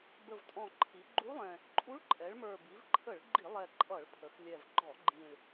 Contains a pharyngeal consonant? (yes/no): no